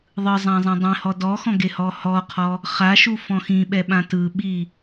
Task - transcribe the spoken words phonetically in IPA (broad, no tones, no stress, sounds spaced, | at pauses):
ðˤ ɯ zˤ ã zˤ ĩ dˤ ẽ h ɔ d ɔ x ɔ̃ ɡ e h ɔ h ɔ qʰ ɔ | χ a ʃ u f ɔ̃ x ĩ ɓ ɛ ɓ ã t ɯ ɓ i